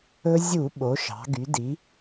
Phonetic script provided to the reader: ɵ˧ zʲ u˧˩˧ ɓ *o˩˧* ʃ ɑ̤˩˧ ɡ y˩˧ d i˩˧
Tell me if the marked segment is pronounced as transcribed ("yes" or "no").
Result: yes